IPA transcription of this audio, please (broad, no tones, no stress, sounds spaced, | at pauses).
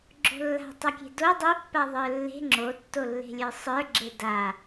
ɡ͡ǁ o̤ lː a̤ tˤ a kʲ e̤ d o dˤ o pː a ðˤ ə˞ lː e̤ ŋ͡ǁ o tː o lː e̤ lʲ ə˞ sˤ ə˞ ɡ͡ǁ e d a